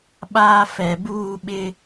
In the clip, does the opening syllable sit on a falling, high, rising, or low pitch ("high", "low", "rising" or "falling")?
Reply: high